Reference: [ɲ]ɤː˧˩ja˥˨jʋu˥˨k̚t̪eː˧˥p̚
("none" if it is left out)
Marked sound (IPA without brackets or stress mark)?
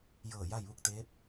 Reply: j